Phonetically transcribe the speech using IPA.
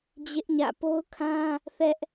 d͡ʑ ɪ˦ ʔ ɲ ä̰˦˨ p o˦ ʊ̯ kʰ ã˦ | θ ɛ˦ ʔ

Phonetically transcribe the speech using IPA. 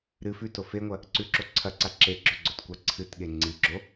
ɾ ɨ f ʉ t o f e ŋʷ ɐ | ǀ ʉ ǁ o ǀʰ ɐ ǀ a ǁ e ɡ͡ǁ ɵ ɡ͡ǀ ɵ t kʷ a ǀʰ ɨ t ɠ e ŋ͡ǀ i ɡ͡ǁ o

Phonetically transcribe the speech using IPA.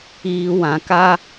iː˨ w ã˨ k a˦

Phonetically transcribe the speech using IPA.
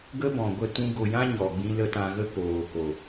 ɡ ə˦ b ɔ̃˨ ɡʷ ə˦˨ t ũ˧ ɡ o˨ j ã˦ ɲ ɔ˨ ɡ͡b ĩ˦ l ə˦ t ã˧ ɣ ə˦ k oː˨ k o˨

